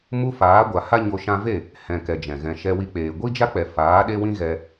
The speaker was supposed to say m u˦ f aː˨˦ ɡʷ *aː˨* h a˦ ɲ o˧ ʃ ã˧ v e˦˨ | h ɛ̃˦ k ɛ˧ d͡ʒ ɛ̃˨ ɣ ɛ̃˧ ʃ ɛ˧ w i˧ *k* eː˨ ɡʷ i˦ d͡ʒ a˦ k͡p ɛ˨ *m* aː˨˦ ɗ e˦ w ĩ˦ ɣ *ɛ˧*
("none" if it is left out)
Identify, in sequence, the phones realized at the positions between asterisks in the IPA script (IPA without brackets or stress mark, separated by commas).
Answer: a˨, k͡p, f, ɛ˧